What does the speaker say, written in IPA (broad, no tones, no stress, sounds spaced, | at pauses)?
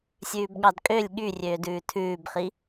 sʲ ʉː b ɠ ɑ d kʼ ø lʲ ɠ y rʲ øː d ʉː tʰ ʉː b χ i